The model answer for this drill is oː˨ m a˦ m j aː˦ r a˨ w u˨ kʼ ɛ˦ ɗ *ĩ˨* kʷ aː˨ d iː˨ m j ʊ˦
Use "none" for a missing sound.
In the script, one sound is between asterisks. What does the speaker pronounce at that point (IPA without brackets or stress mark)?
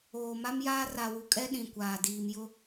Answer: ĩ˨